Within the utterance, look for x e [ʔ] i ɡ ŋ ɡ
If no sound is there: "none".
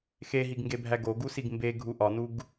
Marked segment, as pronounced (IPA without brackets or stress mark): ɦ